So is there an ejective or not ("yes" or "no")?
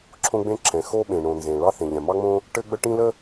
no